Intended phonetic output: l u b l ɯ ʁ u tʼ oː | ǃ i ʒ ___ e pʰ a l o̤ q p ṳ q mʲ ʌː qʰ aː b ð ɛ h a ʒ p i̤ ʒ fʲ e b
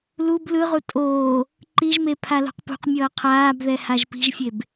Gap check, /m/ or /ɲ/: m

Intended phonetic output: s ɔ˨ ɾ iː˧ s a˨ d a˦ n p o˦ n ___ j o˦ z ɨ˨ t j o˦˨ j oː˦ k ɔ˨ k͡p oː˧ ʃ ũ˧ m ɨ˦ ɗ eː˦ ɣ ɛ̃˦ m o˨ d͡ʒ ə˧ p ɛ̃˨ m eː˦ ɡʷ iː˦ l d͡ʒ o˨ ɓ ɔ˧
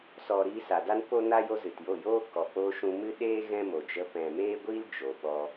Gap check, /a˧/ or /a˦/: a˦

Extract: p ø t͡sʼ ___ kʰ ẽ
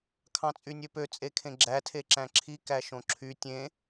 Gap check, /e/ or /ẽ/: e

